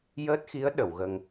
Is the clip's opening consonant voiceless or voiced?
voiced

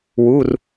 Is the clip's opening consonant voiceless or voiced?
voiced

